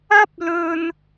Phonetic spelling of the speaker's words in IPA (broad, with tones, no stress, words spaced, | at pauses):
ɐ˥p̚lɵ˧n